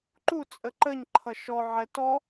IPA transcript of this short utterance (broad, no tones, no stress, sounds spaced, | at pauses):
ǃ u t͡sʼ ə ǃ ə ɲ ǃʰ ʌ ʃ ɔ ʕ ɛ t ɔ